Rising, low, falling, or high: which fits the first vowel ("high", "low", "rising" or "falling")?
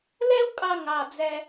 high